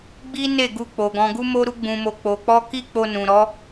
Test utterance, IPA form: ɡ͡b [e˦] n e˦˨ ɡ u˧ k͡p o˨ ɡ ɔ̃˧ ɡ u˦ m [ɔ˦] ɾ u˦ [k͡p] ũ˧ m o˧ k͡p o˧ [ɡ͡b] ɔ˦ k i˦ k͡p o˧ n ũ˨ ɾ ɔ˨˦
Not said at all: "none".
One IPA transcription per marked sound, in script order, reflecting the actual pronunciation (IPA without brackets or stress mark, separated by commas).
i˦, o˦, ɡ͡b, k͡p